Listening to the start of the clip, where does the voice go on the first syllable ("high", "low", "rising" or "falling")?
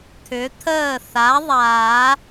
rising